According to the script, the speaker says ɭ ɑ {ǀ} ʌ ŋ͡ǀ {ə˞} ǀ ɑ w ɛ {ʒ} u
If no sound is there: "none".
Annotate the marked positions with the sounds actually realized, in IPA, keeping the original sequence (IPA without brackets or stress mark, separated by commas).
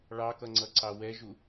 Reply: k, ʌ, ʒ